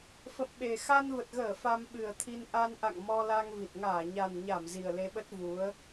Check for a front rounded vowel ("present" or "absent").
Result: absent